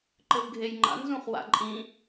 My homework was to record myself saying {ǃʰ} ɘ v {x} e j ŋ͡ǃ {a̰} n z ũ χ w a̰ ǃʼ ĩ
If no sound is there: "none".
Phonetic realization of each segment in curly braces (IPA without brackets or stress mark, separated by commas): ǃ, ɡʱ, a̰